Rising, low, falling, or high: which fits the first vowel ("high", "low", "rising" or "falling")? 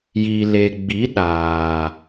low